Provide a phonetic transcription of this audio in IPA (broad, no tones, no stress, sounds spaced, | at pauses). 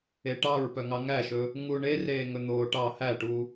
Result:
e ʈ ɑ ɹ p œ ŋ ɑ ŋ æ ʃ ɵ | ŋ u ɳ e r eː ŋ ɵ n̪ oː ʈ ɑ h æ ʈ u